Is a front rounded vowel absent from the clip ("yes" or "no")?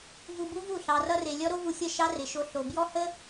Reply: yes